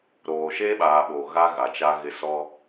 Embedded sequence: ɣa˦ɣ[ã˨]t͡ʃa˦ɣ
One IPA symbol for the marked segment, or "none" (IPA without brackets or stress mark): a˨